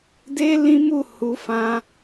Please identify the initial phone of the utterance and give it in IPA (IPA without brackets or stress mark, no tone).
d